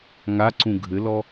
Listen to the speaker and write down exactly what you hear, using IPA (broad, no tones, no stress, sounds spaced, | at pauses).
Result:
ŋ a ǀ ũ ɡʱ ɘ l ɔ